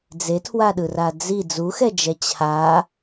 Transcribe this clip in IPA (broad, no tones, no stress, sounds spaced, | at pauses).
d͡z e tʰ w a ɗ ɯ r a d͡z i d͡z u x ɛ d͡ʒ ɛ t͡ɕʰ a